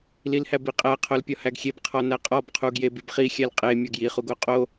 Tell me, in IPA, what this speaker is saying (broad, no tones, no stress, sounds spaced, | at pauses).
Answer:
l i l h æ b i qʼ æ qʰ o l pʲ ɒ h æ ɡ xʲ e b qʰ ɒ n æ qʼ ɒ b qʰ u ɡ j e b i b χ i xʲ æ l qʼ e mʲ ɒ ɡ j i χ u ɡ o qʼ o